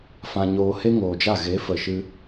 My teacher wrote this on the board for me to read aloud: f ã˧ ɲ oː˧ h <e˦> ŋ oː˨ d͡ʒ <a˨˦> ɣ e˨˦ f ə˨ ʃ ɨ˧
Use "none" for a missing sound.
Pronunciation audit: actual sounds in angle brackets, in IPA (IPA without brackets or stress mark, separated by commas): e˦, a˦˨